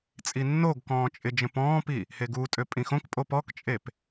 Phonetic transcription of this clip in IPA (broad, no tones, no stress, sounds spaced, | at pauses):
t͡sʼ i nː o ɡ k ɔ̃ː t͡ʃʼ ɪ d͡ʒ ə̃ p ɔ̃ː p i | h e ɡ u tʼ ø pʼ ĩ x õ k pʼ o p ɔ k t͡ʃʼ e p